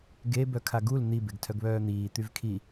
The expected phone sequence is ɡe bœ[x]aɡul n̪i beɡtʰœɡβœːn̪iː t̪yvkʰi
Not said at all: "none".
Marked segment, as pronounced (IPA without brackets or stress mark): kʰ